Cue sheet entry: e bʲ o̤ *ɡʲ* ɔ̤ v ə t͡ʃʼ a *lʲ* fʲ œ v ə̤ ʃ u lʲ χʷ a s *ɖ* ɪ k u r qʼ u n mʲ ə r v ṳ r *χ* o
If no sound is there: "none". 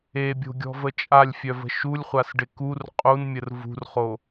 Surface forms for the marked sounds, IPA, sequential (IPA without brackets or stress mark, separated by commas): ɡʲ, lʲ, ɖ, χ